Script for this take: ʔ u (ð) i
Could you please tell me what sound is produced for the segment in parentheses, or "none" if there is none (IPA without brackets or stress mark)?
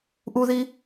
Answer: ð